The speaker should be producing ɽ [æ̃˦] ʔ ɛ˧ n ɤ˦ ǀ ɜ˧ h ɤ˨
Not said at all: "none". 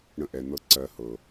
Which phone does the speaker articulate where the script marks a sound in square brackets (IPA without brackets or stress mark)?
ə̃˦